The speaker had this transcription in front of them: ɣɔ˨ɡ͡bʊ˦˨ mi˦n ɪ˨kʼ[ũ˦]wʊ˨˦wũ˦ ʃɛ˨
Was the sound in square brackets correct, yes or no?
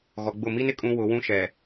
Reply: yes